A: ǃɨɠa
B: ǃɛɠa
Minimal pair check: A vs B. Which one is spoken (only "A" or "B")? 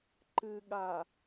A